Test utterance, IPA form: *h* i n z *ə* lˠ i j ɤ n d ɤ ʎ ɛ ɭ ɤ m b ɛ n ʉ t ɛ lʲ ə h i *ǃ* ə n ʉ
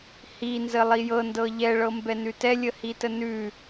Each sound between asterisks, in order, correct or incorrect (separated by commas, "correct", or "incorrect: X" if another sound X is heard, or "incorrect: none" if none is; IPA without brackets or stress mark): correct, correct, incorrect: t